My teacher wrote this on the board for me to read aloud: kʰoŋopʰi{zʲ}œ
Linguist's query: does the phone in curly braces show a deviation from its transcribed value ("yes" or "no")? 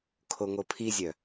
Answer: no